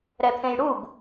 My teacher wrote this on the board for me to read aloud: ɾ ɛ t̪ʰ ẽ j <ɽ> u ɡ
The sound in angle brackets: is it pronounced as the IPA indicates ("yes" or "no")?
yes